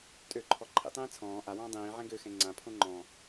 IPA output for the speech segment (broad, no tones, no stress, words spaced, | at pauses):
tʼøǃʰɔ ǃʰḭtˤĩː t͡sʰɔ̃ː ʔawɔ̃ː dˤĩː ʕɛ̃ɡøxɛ̃ ŋ͡ǀãpʰõ ŋ͡ǃɔ̃